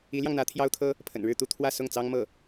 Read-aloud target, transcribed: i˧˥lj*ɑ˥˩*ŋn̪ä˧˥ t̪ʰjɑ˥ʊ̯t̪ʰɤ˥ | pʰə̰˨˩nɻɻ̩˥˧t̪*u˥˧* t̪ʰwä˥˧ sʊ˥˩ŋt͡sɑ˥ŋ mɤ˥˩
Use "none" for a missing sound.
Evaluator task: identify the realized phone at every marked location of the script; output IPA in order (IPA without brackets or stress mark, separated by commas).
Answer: ɑ˧, u˥˧